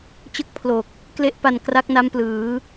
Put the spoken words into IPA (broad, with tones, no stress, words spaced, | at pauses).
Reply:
t͡ɕɯ˥˩k̚pʰlo˨˩k̚ | kle˦˥ʔpa˧n kra˦˥k̚na˦˥mplɯː˩˦